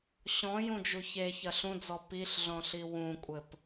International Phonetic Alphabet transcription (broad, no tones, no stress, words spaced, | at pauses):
ɕɔ̃jũd͡ʒu çeçɐ ɬũd͡zɔ piɬɮɔ̃ɬi wũkʷʼɘp